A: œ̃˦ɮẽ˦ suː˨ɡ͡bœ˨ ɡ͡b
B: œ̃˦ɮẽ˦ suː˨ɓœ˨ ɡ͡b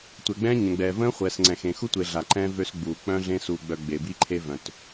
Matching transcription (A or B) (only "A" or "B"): A